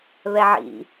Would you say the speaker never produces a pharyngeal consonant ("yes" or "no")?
no